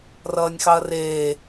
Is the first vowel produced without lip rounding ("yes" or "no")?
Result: yes